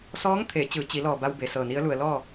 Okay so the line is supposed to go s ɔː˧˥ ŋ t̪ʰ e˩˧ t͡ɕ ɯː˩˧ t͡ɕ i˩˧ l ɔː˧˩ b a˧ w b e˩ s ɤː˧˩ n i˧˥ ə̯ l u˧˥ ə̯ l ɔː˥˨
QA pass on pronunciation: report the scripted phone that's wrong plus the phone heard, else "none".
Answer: u˧˥ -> u˩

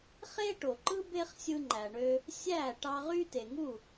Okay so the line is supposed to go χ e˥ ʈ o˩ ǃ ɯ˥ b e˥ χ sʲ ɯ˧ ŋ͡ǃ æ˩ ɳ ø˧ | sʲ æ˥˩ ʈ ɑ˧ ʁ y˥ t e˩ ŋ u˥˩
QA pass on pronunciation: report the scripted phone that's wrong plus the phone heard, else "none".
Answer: none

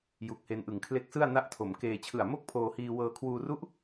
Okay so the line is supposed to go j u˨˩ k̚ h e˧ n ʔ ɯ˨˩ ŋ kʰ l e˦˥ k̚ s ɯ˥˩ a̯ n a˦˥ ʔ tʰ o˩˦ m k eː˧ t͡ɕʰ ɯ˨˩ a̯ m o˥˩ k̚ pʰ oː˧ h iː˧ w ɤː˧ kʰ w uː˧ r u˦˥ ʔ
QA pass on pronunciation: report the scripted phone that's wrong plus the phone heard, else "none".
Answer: none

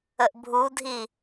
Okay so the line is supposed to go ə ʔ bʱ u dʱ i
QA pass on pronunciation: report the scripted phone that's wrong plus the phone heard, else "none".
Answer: none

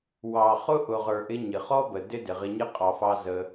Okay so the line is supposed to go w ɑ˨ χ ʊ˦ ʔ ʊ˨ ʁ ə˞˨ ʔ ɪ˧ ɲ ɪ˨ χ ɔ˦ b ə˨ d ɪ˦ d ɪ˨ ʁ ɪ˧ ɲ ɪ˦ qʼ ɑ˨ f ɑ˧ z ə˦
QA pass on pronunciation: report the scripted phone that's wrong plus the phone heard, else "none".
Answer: none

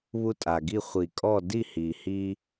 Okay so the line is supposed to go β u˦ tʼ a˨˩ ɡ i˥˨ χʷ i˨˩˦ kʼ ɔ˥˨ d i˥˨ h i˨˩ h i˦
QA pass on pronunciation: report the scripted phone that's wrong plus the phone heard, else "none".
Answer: none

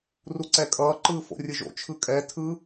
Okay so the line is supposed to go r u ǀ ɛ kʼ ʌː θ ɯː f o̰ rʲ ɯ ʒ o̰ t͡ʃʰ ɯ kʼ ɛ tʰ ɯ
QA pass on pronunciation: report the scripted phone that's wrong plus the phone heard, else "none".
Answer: θ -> ǃ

